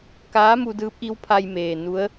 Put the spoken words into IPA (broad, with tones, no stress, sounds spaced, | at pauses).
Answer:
k aː˧˥ m u˧ d ɯː˧˥ p̚ ʔ i˧˥ w pʰ a˧ j m eː˩ n u˧˥ ə̯